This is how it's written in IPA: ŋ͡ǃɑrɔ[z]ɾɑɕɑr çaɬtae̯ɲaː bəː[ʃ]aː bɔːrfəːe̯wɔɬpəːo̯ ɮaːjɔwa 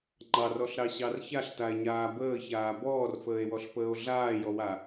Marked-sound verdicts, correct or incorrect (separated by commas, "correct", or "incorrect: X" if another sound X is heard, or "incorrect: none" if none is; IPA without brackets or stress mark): incorrect: ɬ, incorrect: ç